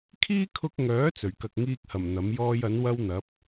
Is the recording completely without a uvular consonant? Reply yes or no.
yes